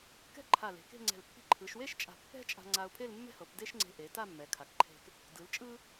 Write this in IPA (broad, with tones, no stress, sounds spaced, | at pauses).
k ɛ̤˥ ǃʰ a˧˩ l e̤˩˧ k e̤˥˧ ŋ͡ǀ ɛ̤˧˩ l pː i̤˧ ǃʰ ɯ˩˧ ʃ w e˥ ʃ t͡ʃʼ a̤˧˩ pː ɛ̤˥ t͡ʃʼ a̤˧ ŋ͡ǀ a˧ ʊ̯ pʰ e˥˧ l mː ɛ̤˥ h ɤ˩˧ p d e˥ ʃ ŋ͡ǀ e̤˧ ʔ e˩˧ t a˥˧ mː ɛ˩˧ kʰ a˩˧ k ǃʰ e̤˧ k | d ɯ˩˧ l t͡ʃʼ ɯ˥